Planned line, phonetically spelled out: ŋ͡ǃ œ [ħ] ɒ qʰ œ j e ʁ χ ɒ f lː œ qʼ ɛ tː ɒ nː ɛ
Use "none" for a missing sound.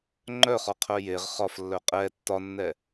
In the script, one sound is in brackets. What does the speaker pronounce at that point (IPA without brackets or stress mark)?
χ